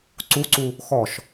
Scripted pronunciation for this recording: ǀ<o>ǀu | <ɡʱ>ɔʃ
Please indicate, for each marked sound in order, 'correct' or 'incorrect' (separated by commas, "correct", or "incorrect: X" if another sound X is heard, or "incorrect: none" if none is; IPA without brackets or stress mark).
incorrect: u, incorrect: x